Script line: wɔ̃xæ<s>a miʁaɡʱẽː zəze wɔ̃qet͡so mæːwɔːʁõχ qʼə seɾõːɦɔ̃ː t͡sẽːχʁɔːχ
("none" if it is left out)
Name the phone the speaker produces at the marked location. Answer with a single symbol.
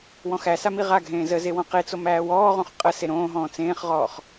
s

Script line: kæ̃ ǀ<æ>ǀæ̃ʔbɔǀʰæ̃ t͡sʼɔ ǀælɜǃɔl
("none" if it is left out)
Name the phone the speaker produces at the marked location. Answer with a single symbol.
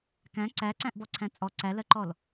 æ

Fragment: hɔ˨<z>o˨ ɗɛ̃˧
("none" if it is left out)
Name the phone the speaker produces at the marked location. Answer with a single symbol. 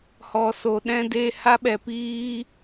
s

